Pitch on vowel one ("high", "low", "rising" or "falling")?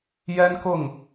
high